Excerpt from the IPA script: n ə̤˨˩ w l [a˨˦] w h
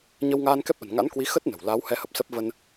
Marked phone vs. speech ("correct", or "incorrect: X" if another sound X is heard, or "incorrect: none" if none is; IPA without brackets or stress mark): correct